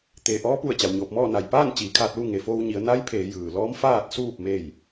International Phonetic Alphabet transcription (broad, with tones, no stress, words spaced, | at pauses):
t̪eː˩ʔɔː˧˥pu˧˩ə̯ t͡ɕa˩wɲoː˧˩p̚mɔː˥˨ na˩jpaː˥˨n t͡ɕiː˩˧kʰaː˧t̚lu˥˨ ŋe˩foː˧wɲi˩˧ə̯ na˧˥jpʰeː˩˧ jɯː˩lɔː˧˥mfaː˥˨t̚suː˥˨p̚ me˥˨j